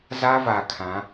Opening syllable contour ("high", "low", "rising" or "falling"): high